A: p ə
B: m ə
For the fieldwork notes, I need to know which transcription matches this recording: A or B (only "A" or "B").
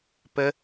A